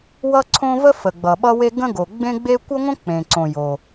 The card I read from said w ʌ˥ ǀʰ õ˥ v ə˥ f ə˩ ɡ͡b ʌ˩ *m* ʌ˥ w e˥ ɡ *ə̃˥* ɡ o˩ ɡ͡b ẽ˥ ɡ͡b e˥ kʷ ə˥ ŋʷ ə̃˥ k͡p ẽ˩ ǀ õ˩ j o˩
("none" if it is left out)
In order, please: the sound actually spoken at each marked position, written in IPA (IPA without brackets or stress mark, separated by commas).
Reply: ɓ, ə̃˥